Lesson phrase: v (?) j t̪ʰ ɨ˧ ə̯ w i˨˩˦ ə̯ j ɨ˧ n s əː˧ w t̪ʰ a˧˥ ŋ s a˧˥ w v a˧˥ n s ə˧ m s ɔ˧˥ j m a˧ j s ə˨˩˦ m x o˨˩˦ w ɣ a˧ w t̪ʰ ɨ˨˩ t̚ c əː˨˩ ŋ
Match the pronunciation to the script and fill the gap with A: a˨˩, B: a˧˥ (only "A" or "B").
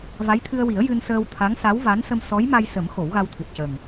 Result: B